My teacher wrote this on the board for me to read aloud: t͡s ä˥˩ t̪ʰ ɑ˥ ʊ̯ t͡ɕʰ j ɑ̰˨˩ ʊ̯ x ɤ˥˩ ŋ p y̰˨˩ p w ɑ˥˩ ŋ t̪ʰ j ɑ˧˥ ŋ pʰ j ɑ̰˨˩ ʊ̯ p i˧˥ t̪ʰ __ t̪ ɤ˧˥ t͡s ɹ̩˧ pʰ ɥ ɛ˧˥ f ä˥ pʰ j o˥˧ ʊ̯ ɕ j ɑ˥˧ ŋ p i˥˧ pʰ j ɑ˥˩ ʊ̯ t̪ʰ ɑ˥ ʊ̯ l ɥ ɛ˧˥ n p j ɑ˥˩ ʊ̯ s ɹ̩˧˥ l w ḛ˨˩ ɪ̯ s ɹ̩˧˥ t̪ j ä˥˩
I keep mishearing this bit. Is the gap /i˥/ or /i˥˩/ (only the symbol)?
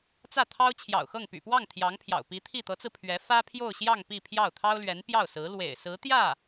i˥˩